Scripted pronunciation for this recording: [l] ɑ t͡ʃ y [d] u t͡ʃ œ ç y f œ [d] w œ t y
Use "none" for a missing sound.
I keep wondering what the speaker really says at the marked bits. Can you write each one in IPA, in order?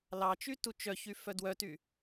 l, t, d

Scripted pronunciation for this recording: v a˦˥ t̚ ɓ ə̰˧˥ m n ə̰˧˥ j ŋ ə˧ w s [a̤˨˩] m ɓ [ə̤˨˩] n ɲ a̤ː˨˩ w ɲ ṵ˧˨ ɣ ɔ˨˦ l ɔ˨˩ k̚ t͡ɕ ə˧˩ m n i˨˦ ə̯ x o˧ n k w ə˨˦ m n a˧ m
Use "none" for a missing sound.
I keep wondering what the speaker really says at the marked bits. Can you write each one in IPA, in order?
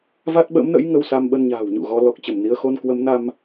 a˧, ə˧

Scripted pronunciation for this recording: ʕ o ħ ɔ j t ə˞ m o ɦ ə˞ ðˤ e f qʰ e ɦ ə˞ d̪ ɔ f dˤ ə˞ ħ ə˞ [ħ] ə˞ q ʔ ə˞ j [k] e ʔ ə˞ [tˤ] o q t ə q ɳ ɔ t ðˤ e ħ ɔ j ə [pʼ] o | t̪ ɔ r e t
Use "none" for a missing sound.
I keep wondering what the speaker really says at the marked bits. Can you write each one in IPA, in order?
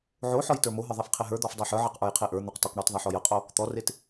ʕ, qʰ, n̪, qʼ

